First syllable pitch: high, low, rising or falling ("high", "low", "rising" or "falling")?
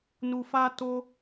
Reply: low